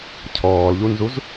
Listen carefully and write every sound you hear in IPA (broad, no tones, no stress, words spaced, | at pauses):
cʰɔːlʎunzuz